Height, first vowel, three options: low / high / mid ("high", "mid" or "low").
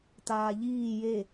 low